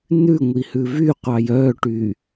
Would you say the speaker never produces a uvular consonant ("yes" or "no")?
no